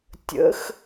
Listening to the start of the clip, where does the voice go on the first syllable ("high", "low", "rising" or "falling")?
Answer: rising